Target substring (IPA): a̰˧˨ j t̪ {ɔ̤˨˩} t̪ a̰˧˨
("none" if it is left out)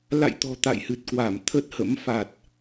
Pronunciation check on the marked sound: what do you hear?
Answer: ɔ̤˨˩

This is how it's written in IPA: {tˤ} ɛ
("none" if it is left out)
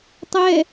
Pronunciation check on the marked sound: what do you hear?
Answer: tˤ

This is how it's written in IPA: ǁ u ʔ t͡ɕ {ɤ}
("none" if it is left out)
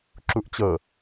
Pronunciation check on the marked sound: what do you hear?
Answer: ɤ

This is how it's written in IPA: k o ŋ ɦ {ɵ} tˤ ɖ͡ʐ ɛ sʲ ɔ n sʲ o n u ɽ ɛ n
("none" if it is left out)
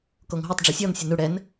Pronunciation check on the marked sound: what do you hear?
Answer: o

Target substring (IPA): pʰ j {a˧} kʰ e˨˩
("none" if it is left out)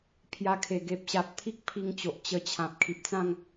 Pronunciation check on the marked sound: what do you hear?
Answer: a˧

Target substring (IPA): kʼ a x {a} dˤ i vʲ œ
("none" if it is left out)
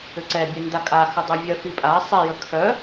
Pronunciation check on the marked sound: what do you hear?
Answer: ə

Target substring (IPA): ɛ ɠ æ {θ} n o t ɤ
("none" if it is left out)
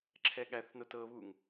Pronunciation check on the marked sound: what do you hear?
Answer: θ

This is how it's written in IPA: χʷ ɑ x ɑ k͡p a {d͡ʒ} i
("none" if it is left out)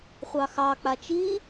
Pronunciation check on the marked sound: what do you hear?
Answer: t͡ʃ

